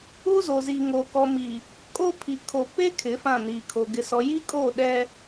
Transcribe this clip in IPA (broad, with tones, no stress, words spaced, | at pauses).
u˦zo˨zi˨ŋo˨ kɔ˨mi˨ | kʼo˦ pʰi˨kʰo˨ pe˦ kʰɪ˨˦fã˦˨niː˨kʰo˨ ɡɪ˨sɔ˨ji˦kʼoː˦˨ ɗɛ˦